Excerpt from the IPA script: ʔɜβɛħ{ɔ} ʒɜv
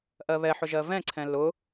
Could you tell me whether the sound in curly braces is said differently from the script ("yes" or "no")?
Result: yes